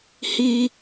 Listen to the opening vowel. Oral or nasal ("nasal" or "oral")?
oral